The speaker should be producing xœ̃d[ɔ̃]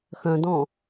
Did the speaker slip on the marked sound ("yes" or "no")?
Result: no